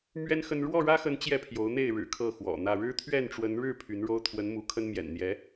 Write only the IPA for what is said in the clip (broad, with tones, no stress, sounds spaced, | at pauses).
m ɥ ɛ˦ n x ə˦ n ɻ w ɔ˥˨ ɻ ä˦ x ə˨˦ n t͡ɕ j ɛ˥˨ pʰ j o˨˦ ʊ̯ n̪ e˥˨ ɪ̯ ɻ ɻ̩˨˩ kʰ ɤ˥˨ x w ɔ̰˨˩ n̪ ä˥˨ ɻ ɻ̩˦ t̪ʰ ɥ ɛ˥˨ n ʈ͡ʂ w ə˨˦ n ɻ ɻ̩˥˨ pʰ y˨˦ n ɻ o˦ ʊ̯ t̪ʰ w ə˨˦ n m u˨˦ kʰ ə˦ n m j ɛ̰˨˩ n n̪ j ɛ˨˦